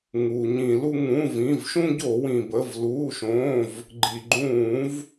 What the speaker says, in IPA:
ŋ uː˩ ɲ ĩ˧˩˧ l u˦ ŋ ũ˩˧˩ v ĩ˩˧˩ v ʃ ũ˦ ɟ o˧˩˧ w ĩ˩ b ə˩˧˩ v l uː˩˧˩ ʃ õː˩˧˩ v | ɡ͡ǃ i˩ ɡ͡ǃ ũː˧˩˧ v

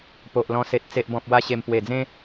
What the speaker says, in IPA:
p o˨ ʔ l ɔ̃˧ s e˨ t̚ t͡s e˨ ʔ b ɔ̃˨ p̚ w a˧ ɕ e˨˩ m p w e˨˩ d͡z ẽ˦

